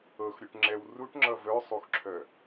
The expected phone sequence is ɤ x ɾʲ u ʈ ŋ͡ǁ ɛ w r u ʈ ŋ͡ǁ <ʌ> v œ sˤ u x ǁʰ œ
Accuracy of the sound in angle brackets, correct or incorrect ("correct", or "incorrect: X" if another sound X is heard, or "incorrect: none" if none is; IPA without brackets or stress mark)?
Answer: correct